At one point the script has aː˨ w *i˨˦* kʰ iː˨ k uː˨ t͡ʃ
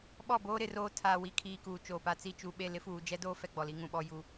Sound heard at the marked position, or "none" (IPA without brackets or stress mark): i˨˦